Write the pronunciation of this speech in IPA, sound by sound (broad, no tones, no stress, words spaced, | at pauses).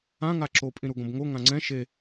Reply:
ãŋa ǁopʼĩ ɾuɡõbŋo ŋãŋ͡ǀɛ̃ ʃe